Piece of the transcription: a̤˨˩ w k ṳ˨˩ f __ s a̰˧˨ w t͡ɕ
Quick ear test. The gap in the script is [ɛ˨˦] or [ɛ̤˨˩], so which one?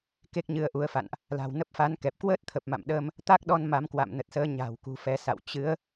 ɛ˨˦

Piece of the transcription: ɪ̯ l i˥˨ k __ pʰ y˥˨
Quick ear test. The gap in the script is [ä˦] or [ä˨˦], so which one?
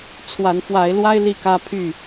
ä˦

